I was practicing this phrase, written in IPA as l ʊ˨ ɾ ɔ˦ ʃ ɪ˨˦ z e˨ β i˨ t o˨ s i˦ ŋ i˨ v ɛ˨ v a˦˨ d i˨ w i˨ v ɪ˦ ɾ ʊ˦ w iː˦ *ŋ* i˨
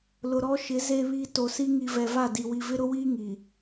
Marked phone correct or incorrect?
correct